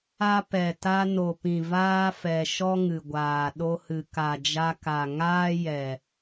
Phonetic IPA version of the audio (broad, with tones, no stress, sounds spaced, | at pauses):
a˦ p ɛ˨ t a˧ n o˨ p ĩ˨ v aː˦ f ɛ˨ ʃ ɔ˦ ŋ ɨ˨ ɡʷ aː˨ ɗ o˧ h ɨ˨ k a˨ d͡ʒ a˧ k a˨ ŋ aː˦ j ɛ˨